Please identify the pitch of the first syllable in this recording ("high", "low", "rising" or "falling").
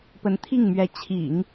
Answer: rising